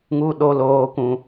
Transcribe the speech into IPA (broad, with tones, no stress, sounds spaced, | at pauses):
ŋ u˦ ɗ o˦ l oː˦ kʷ ũ˦